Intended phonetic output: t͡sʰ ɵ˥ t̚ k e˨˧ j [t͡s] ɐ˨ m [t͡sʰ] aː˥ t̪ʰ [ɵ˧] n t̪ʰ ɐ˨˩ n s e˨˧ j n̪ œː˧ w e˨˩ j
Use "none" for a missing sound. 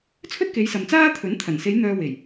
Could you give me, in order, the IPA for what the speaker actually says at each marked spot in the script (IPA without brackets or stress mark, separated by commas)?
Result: s, t͡s, ɵ˨˥